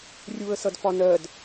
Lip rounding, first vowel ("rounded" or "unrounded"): rounded